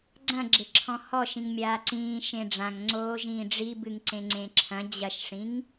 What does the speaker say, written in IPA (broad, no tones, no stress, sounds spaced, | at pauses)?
ɡ͡ǀ ɐ̃ ɡ͡ǁ e ǁʰ ɔ̃ h ɔ ʃ ĩ ŋ mʲ aː ǀ ĩː ʃ ẽ ɖ͡ʐ ã ŋ ŋ͡ǀ oː ʒ ĩː ɖ͡ʐ i b ɨ ŋ ǀ ẽ ŋ͡ǀ ẽ ǁʰ ɐ̃ d͡ʑ ɐ ʃ ʂ ĩ ŋ